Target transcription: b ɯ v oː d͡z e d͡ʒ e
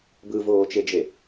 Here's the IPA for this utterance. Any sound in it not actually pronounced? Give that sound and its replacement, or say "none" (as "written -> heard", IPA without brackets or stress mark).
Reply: d͡z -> t͡ʃ